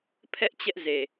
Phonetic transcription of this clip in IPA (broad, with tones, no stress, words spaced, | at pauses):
pʰɛ˦ʔ t͡ɕɛ˦ʔze˨